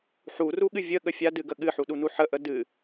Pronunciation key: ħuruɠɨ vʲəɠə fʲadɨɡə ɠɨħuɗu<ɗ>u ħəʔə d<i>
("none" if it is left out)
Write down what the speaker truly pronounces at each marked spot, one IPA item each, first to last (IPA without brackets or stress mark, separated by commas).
n, ɨ